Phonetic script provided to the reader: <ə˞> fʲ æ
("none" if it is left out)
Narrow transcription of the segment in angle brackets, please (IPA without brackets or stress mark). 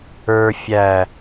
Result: ə˞